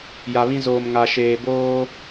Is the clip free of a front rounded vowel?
yes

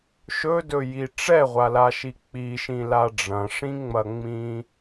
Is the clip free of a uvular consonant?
no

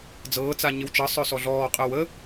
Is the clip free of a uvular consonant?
no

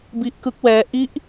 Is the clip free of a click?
yes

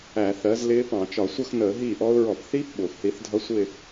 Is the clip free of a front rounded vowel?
yes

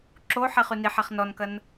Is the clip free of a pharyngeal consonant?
no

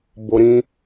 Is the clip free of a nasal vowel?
no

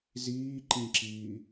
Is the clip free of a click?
no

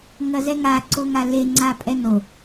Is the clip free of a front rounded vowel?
yes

